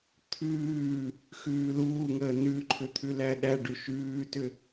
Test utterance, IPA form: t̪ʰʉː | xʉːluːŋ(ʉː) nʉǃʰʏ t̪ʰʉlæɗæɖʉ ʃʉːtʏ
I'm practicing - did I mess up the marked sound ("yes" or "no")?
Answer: yes